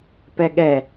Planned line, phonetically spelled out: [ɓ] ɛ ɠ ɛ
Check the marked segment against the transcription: incorrect: p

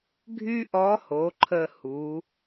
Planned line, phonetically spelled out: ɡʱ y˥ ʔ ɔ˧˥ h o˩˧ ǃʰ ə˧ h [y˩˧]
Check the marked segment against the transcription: incorrect: u˩˧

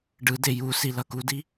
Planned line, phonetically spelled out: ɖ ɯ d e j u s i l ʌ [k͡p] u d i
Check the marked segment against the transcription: incorrect: k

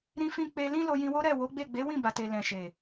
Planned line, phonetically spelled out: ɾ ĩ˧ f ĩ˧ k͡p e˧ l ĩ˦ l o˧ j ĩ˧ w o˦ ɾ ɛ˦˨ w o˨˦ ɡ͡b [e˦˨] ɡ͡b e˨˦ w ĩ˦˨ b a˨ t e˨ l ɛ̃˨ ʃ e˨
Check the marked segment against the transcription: correct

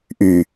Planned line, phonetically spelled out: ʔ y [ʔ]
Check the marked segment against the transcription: incorrect: none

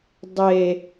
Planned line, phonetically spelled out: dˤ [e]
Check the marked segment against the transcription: correct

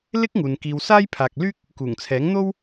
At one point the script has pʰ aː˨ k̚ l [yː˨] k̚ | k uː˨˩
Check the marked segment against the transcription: incorrect: yː˥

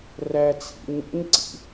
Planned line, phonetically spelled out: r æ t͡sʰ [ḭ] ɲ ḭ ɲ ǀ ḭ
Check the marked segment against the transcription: correct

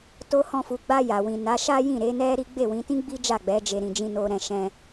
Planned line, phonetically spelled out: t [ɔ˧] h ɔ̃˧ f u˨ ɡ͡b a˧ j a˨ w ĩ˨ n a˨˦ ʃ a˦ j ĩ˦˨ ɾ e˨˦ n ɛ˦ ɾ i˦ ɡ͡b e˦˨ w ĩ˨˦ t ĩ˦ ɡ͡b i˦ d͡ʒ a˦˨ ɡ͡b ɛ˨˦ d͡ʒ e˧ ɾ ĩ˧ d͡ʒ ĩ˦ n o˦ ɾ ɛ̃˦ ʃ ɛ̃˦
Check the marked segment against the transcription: incorrect: o˧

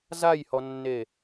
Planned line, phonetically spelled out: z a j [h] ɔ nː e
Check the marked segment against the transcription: correct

